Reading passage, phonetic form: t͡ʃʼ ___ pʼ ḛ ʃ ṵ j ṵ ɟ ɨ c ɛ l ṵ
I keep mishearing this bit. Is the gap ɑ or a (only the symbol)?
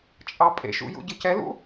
ɑ